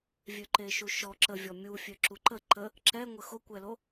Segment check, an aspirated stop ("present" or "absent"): absent